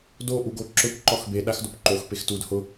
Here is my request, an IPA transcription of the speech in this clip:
d o ʔ u ɡ o ǁ ʊ p ǃ ɔ x b e ɗ a x d o p ǃ o x p e x t u d h ʊ

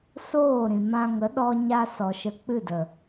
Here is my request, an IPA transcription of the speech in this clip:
s oː˦˨ ɾ ĩ˨ m ã˧ ŋ ə˨˦ ɗ ɔ˧ ɲ a˧ s ɔ˨ ʃ ə˧ k͡p ɨ˦˨ d ə˨

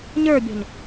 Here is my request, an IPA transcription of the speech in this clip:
ɲ ə˞ bʲ ɔ̤ ɲ

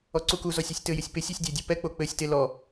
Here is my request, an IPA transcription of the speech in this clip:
ɔ ǀ u k u z ɔ sʲ e sʲ t ɘ j ɪ sʲ p ɪ sʲ ɛ sʲ dʲ e dʲ u p ɛ k͡p o k͡p ɘ sʲ t e l ɔ

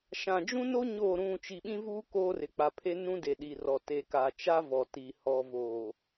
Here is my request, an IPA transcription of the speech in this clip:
ʃ ã˨ d͡ʒ ũ˦ n o˦ ɲ oː˦˨ ɾ ũ˦˨ t͡ʃ i˨ ɓ ĩ˦ v uː˦ k oː˦ r ɪ˨ k͡p a˨ pʰ e˦ n ũ˦ d e˨ ɗ i˨ r ɔ˨ t e˨ k a˨ t͡ʃ a˦ v ɔ˨ t i˨ h ɔ˨ v oː˨

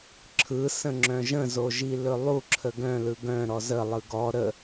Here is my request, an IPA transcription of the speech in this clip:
ǁʰ ɯ s ə̃ ŋ͡ǁ œ̃ ʒ ə̃ z o ʒ i l ɵ lˠ u ǁʰ ə ɡ œ̃ l ɯ ɡ œ̃ ɾ ɔ z ə lˠ ɯ ɡ ɔ ɾ ə

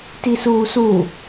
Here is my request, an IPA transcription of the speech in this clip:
t i s uː s u

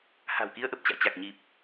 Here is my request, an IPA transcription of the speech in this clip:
h a̤˨˩ w k i˧ ə̯ ʔ ə˨˩ p̚ t͡ɕ a̰ː˧˨ t͡ɕ a˨˩ k̚ ɲ i˨˩ p̚

